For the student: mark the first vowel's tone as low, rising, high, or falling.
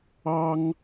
high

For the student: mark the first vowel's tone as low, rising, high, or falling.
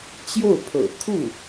falling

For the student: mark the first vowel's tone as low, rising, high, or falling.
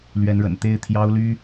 rising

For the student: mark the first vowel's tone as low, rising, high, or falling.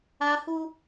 high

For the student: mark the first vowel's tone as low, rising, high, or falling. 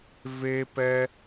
high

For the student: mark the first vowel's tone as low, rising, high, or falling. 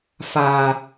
high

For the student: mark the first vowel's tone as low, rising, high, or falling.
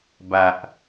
low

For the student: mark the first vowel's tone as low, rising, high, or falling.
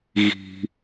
low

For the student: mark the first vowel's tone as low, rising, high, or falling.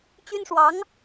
high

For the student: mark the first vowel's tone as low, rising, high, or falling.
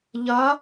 rising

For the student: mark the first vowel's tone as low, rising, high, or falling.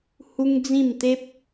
high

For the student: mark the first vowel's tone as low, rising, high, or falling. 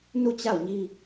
falling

